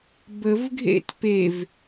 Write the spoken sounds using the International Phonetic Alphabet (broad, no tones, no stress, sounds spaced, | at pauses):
b ə v ɡʱ ḛ t p e v